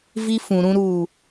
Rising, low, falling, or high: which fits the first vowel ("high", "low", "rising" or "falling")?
high